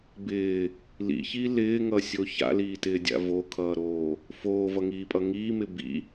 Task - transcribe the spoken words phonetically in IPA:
b ɪː | l ḭ ç i l ɪː ŋ ʌ sʲ o ç a̰ l iː t ɪː dʲ a̰ v o kʰ ʌː ɾ oː | f oː v ʌ ŋ iː pʼ ʌ ŋ iː m ɪ b ḭ

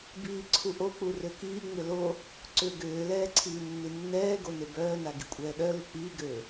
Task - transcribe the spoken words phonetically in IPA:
b iː ǀʰ u ʔ o k͡p u r ø k iː ŋ͡m ʏ l o | ǀ ʏː ɡ ʏː l ɛː ǀʰ iː nː i nː ɛː ɡ o n e b œː n a ɡ i kʷʼ ɛː ɗ œ l u k͡p iː ɡ øː

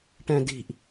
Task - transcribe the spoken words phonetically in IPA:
ʈ ɛ̃ d i̤ ʔ

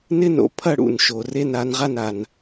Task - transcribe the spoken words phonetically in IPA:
n ɪ˥˧ n o̰˩ pʰ ɐ˥˧ ɽ ṵ˩ n ʃ o˩ r e˥˧ n a˨˦ n ʁ a˥˧ n a˩ n

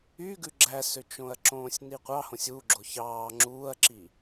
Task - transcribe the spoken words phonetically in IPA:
y ɡ ʉ ɡ͡ǁ æ s ø t͡ʃ õ ɐ̯ ǁ õː sʲ n i qʷ ɑ h õ sʲ u ɡ͡ǁ o ç ɑː ŋ͡ǁ uː ɐ̯ ǁ i

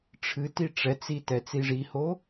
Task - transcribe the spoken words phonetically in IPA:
ʈ͡ʂʰ ɨ t i ʈ͡ʂ ɛ t͡s i t ɛ t͡s i ʐ i h o

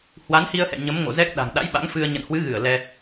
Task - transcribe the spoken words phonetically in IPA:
h w a˨˦ n h i˧ ə̯ h ɛ̰˧˨ ɲ ə˨˦ m ŋ o̰˧˨ z ɛ˦˥ k̚ ɗ a̤˨˩ ŋ ɗ a̰˧˥ j ɓ a̰˧˥ ŋ f ɨ˧ ə̯ ɲ ə̰˧˨ n h w ɨ˨˦ ɣ ɨ˧˩ ə̯ l ɛ˧

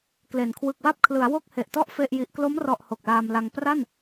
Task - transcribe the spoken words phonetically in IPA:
k l e˨˩ n kʰ w ɯ˨˩ k̚ w a˥˩ p̚ kʰ l ɯ˩˦ a̯ w o˥˩ k̚ h e˨˩ ʔ t ɔ˥˩ ʔ f e˥˩ ʔ j i˦˥ ʔ k l o˦˥ m r ɔ˨˩ ʔ h o˨˩ k̚ l aː˧ m l a˧ ŋ p r a˥˩ n

